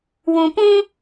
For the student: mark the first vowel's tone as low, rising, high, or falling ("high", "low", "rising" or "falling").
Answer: low